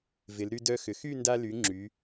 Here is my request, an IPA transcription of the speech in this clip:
v ɪ˩˧ l ɾ y˧ d œ˧ x ʏ˩˧ x y˥˧ n d a˧ l y˩˧ ŋ͡ǁ y˩˧

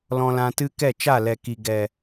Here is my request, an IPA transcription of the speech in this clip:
l ɔ̃˧ l ã˧ t ɨ˦ k ɛ˦˨ t͡ʃ a˦˨ l ɛ˨ k i˨ ɡ ɛ˨

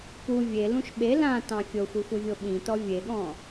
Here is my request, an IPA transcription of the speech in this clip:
p u vʲ e l ũ ʃ ɓ e l ã t ɑ̃ fʲ o xʷ i xʷ i vʲ o ɓ ĩ t ɔ vʲ e ɠ ɔ̃

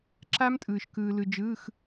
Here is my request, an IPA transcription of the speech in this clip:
ǁ a˦˥ m tʼ ɯː˩ ʃ k ɯː˩ l ɯ˩ d͡ʒ ɯː˩˧˩ x

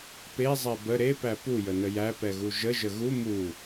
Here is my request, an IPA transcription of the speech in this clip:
p e zˤ ɛ b ə ɾ e p æ p u j ə n ə j æ p ɛ ɣ u ʒ ə ʒ ə ɣ u m u

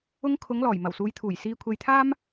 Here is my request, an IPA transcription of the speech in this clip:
ʊ˧ ŋ kʰ ʊ˨˧ ŋ l ɔː˨˩ j m ɐ˨˩ w s uː˨˧ j t̪ʰ uː˨˩ j s iː˧ kʷʰ e˧ j t̪ʰ aː˥ m

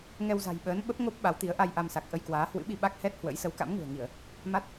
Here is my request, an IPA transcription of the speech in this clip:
ŋ ɛ˧ w z a̤˨˩ j ɓ əː˨˦ n ɓ ə˦˥ p̚ ŋ o˦˥ p̚ ɓ a˨˦ w t̪ i˨˦ ə̯ ʔ a˧ j ʔ a˧ m s a˨˩ k̚ ʔ ə˧ j k w aː˨˦ h w ɨ̰˧˥ ɓ i˧ ɓ a˦˥ k̚ h ɛ˦˥ t̚ h w ə̰˧˥ j s ə˨˦ w k a̰˧˥ m ŋ ṳ˨˩ ə̯ ŋ i˧˩˨ ə̯ | m a˦˥ t̚

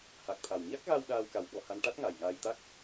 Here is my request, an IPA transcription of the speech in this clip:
h a˨˩ k̚ t̪ʰ a˨˩ w ɲ a˦˥ k̚ ɣ a˧ w ɗ aː˧ w k a˨˩˦ w ɓ ɔ˨˩ h a˧ n ʈ a˦˥ t̚ ŋ a˨˩ j ŋ aː˧ j t̪ a˦˥ k̚

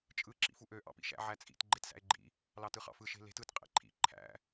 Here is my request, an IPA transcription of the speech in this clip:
t͡ʃʼ ɯ ǁ ḭ f u ʔ ø ʔ ɑ̰ p ḭ ʃ æ̰ ʕ æ t͡sʼ ḭ t ɡ͡ǃ e t s æ̰ e̯ ɡ͡ǃ ḭ | l ɑ t ɯ χ ɑ̰ f ɯ ʃ e̤ l e̤ t ɯ t qʼ ḛ ǃʰ ḭ ǃʰ æ̰

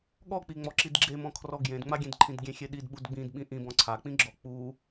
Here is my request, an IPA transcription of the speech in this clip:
ɠ ɔ k͡p i ŋ͡m ɔ ǁ i d ɡ͡ǁ e m ɔ̃ kʰ r ɔ ɡ j ẽ d ŋ͡m a ɡʲ ẽ d ǃʰ ĩ d ɡʲ ẽ xʲ e ɗ i d ɓ u d ɡ͡b ĩ d ɓ ĩ ʔ ĩ b ɔ̃ ǀʰ a k͡p ĩ ɡ͡ǁ ɔ k͡p u

